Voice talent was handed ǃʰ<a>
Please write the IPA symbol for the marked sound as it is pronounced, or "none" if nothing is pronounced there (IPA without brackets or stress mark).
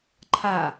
a